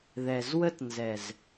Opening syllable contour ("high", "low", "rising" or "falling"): low